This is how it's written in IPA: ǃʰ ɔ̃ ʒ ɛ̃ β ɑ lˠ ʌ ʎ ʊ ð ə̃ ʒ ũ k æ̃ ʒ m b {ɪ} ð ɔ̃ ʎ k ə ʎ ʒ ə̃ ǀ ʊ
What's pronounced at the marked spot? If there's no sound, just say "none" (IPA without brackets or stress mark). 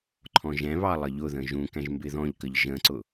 ɪ